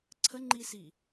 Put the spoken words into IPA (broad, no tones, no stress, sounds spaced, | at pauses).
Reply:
ǀʰ ə ŋ͡ǃ i s i